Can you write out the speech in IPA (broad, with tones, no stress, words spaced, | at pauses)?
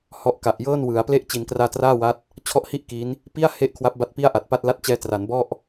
hɔ˦˥ʔka˨˩ʔ jɤː˥˩nwɯ˩˦a̯ ple˦˥ʔ t͡ɕi˩˦nkraː˧traː˥˩wa˦˥t̚ | t͡ɕʰɔ˦˥ʔhi˥˩ʔ ki˦˥n | pi˥˩a̯ he˦˥ʔ kʰwa˦˥p̚ba˦˥t̚pi˥˩a̯ ʔa˨˩t̚pa˥˩t̚la˥˩t̚ t͡ɕɛː˧tra˩˦nbɔ˥˩ʔ